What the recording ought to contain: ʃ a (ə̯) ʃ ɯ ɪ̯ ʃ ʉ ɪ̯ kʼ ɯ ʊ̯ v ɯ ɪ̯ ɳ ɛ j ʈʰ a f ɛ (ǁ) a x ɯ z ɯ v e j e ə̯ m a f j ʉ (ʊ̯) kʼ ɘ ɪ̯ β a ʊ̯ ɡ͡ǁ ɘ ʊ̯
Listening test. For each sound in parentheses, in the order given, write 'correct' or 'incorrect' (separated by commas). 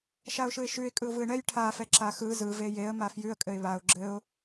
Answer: incorrect, correct, incorrect